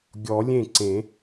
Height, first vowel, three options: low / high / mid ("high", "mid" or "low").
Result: mid